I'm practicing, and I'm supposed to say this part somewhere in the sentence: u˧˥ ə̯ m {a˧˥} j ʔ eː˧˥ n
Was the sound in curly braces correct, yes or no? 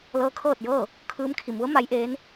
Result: yes